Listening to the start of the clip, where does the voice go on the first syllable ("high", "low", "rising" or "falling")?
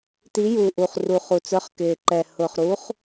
rising